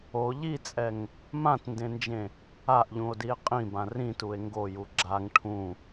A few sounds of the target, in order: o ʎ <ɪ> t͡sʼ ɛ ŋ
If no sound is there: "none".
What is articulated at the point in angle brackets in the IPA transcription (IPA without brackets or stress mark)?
i